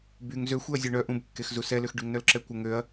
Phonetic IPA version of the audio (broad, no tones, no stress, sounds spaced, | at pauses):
b y ŋ z ø xʷ e ɐ̯ zʲ ø ɳ œ ʔ ũ b kː e x z u s ɛ l ø x ɖ y ŋ n œ l ǁ ɛ kʷ ə ŋ ø ɐ̯